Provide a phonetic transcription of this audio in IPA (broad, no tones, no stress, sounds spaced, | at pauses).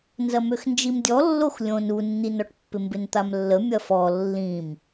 n z ɐ m ø x n d͡ʒ i m dʲ ɔ lː o x lʲ õ n u nː i n ɔ ʈ pː ɪ m b ɪ n t̪ a m lː ə mʲ ɐ f ɔ lː ĩ m